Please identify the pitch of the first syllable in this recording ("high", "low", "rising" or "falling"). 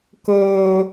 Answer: low